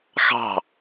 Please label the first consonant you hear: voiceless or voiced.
voiceless